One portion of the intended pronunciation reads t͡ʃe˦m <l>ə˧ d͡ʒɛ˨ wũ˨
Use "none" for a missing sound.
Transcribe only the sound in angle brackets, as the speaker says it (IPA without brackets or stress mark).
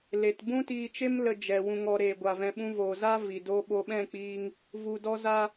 l